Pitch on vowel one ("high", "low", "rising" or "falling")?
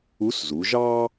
rising